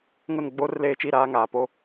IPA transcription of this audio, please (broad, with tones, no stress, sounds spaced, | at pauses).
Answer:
ŋ ʊ˦˨ n ɡ͡b oː˦ r l eː˦ t͡ʃ i˦˨ ɾ aː˦ ŋ aː˨ p o˦